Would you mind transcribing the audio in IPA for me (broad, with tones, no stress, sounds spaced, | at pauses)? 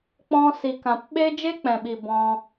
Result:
k͡p ɔ̃˧ s i˨ k ã˨ p ɓ e˦ d͡ʒ e˦ k͡p ɛ̃˨ ɓ i˨ b ɔ̃˧